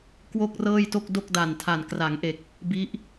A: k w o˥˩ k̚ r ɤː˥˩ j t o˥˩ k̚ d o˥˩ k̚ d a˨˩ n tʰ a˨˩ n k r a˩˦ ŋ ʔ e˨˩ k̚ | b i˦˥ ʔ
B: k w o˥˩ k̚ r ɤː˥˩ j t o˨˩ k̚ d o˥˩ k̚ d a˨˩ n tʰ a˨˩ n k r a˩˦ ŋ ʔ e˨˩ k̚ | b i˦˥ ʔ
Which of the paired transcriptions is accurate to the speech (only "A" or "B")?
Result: A